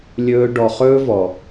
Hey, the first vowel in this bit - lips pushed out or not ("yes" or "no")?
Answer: yes